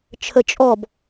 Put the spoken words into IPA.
t͡ʃʰ ə t͡ʃʼ ɔ b

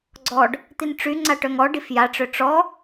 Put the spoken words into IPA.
ɡ͡ǀ ɔ ɖ | t̪ i n ʈ͡ʂ y ŋ͡ǀ a ʈ œ ŋ ɔ ɖ i f j a ʈ͡ʂ ø ʈ͡ʂ ɔ

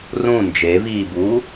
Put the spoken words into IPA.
r ũ n d͡ʒ e v iː b uː

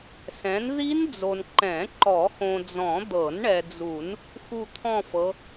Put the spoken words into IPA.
s ɛ̃˨˦ n ð i˦˥ n d͡z o˨ n ǃ ɛ̃˨˩˦ ǃ ɔ˨˩˦ x õ˨ d͡z ɔ̃˨˩˦ d̪ ɤ˨˩˦ n ɳ ɛ˨ d͡z u˨˩˦ n | x u˥˧ t̪ʰ ɔ̃˥˧ f ɤ˨˦

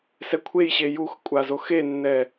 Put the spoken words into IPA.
s ɛ kʷʰ e j ɕ e j u x kʷʼ a z o x e nː ɛ

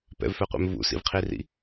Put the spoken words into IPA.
p ɛ̰ v f ɛ qʷ ɛ̰ m v ṵ s ḭ v qʰ i r ḭ

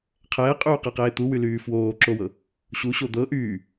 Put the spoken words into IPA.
qʰ ɛː qʼ yː q ɛ q eː t̪ u w y l yː f w oː ǁ o w ɤ | ɕ u ɕ o d̪ ɤ ʔ yː

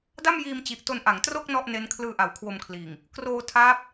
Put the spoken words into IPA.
d a˥˩ m j iː˧ m t͡ɕ i˨˩ ʔ t o˧ n ʔ a˩˦ ŋ t r o˥˩ k̚ n ɔ˥˩ ʔ n e˦˥ n kʰ l ɯː˧ ʔ a˩˦ w kʰ w o˧ m kʰ l iː˨˩ ŋ | k r oː˧ tʰ aː˦˥ p̚

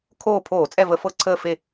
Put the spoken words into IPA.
kʰ oː˦˨ pʰ oː˧˩˧ t͡sʼ ɛ˦˨ v ə˧˩˧ f ɤ˦˨ ǀʰ əː˦˨ f e˦˨

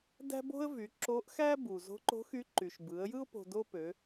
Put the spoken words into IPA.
d æ̤˥ b o̤˥ ə̯ v y˩˧ ǁ o˧˥ ʔ x æ˥ b u˩ z o̤˧˥ ǃ o̤˧˥ x y˧˥ ǃ y˩ ʃ b ɯ˩˧ ə̯ j ɯ˥ ʊ̯ p o̤˧ d o˥ p ø˩˧

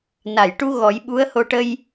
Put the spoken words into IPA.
n a˨˩˨ j ʈ u˧ ɣ ɔ˨˩˦ j ɓ u˧˥ ə̯ h o˧ ʈ ə˧ j

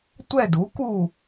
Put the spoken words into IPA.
tʷ ɛ˦˨ d u˩˥ k u˦˨

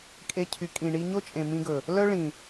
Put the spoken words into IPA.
kʼ e˧ cʰ y˨ kʼ ĩ˨ ɳ i˧ ɲ o˦ t͡ʃʼ ẽ˨ m ĩ˧ ɡ ɵ˨ | l œ˦ ɭ ĩ˨

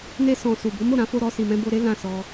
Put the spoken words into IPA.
n e˧ s ɔ̃˨ s u˨ b o˨˦ m o˦˨ ɾ ã˨˦ f o˧ ɾ ɔ˧ s i˨ m ɛ̃˧ b o˧ ɾ e˦ l ã˦˨ s ɔ˧

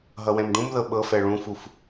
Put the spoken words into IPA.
ɦ ʌ w ɛ̃ m ɖ ũ m ð ɤ ɓ ɤ f ɛ ɭ ũ f u f

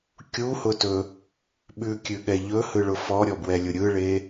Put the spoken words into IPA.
kʲ u h ʊ t ɵ | ɓ ʉ kʲ ʉ ɠ ɛ ʎ ɵ h ɯ ɭ ʊ f ɔ ɾʲ ɔ b w ɛ lʲ ʊ ɾʲ ɯ ɭ e

